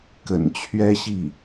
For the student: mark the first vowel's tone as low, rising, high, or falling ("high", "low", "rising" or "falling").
low